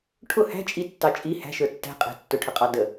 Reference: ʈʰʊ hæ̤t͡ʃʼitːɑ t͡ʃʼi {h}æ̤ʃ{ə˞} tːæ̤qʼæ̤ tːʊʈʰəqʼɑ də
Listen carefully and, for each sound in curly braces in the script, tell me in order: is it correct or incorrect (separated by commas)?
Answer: correct, correct